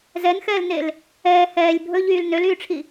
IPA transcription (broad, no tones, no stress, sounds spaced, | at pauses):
z ɛ n x ɛː l n e l | ɛː h ɛː lʲ bʱ ɵ ʎ yː l n ø l yː ʈ͡ʂʰ i